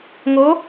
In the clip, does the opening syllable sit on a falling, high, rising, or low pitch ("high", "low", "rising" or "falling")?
rising